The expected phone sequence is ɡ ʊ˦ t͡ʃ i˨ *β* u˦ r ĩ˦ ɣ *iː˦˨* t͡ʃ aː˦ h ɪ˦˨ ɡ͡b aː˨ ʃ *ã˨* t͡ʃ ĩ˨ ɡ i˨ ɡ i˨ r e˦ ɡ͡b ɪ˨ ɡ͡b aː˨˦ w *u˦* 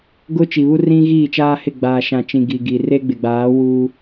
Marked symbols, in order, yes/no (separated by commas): yes, yes, yes, no